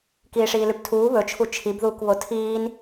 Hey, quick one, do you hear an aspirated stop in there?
yes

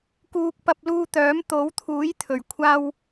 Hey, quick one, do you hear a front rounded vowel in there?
yes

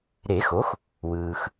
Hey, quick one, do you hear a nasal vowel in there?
no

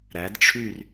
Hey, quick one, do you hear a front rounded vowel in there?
yes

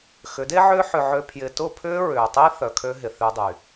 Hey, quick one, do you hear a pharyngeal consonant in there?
yes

